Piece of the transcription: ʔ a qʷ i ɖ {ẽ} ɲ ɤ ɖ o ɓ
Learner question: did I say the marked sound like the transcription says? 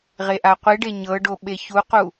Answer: no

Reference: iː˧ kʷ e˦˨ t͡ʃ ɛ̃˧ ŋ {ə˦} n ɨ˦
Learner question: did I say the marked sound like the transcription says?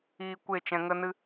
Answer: yes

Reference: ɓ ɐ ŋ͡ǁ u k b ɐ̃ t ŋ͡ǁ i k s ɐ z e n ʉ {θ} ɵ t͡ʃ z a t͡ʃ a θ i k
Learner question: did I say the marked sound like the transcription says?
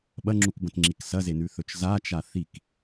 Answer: yes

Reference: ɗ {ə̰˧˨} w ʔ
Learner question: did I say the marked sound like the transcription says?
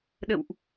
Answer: yes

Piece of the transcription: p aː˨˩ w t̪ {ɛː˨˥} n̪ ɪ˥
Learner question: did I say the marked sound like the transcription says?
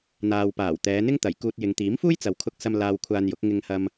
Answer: no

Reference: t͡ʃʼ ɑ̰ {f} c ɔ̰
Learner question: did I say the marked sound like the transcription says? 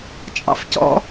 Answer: yes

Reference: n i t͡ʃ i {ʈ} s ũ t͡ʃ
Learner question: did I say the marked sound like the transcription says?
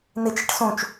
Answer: yes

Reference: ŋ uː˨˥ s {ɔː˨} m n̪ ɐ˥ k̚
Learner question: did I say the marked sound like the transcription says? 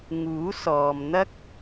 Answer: yes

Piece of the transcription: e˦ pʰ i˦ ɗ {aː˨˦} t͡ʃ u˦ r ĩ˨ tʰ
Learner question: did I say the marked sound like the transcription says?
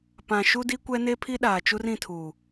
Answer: no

